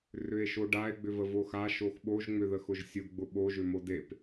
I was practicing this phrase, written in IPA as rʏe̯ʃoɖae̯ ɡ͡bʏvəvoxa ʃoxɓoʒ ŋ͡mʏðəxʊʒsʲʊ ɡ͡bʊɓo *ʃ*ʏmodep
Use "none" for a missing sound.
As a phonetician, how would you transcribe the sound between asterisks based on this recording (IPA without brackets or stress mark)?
ʒ